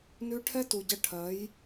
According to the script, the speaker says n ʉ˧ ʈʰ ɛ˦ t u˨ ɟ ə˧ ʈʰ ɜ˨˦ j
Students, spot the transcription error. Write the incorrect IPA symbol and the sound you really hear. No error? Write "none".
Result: none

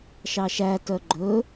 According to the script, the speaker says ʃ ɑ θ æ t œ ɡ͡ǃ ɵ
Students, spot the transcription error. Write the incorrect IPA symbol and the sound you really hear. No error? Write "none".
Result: θ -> ʃ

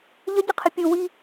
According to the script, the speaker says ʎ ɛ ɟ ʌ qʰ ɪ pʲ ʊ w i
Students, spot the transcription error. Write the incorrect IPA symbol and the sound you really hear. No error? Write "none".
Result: ɛ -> ə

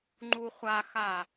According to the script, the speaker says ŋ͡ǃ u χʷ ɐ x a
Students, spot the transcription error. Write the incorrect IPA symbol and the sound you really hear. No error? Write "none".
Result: ɐ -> a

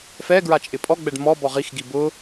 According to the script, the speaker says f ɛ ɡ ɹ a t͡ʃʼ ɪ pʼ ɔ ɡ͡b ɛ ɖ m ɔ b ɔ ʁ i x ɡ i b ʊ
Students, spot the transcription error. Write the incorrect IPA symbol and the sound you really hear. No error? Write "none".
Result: none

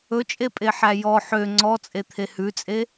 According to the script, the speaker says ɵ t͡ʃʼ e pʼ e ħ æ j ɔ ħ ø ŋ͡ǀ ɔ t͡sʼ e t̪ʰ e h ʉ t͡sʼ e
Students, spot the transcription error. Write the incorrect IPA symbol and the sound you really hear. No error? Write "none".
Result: none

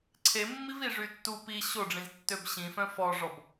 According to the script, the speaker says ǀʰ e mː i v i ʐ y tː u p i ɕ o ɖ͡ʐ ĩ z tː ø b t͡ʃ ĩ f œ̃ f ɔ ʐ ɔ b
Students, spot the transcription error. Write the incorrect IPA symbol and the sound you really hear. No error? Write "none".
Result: t͡ʃ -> ɕ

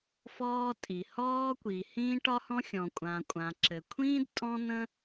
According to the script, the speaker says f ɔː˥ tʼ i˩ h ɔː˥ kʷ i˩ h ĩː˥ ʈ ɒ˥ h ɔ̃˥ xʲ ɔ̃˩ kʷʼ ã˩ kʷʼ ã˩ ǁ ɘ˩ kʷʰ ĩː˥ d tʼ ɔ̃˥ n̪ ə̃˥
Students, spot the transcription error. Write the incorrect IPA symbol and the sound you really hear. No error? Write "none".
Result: none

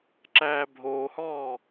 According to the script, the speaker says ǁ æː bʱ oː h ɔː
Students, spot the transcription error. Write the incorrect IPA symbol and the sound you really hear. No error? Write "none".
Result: none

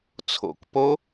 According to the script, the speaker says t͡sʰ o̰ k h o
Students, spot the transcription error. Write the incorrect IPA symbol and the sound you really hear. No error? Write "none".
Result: h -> p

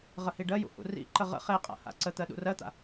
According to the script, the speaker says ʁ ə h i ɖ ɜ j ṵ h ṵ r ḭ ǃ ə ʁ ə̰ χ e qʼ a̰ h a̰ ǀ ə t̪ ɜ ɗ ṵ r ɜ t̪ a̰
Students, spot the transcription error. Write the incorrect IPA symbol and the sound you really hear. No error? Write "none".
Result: none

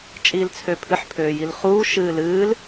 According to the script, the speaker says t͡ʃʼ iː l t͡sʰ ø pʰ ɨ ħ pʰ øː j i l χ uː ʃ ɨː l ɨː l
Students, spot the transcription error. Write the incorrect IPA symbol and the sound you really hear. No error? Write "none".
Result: none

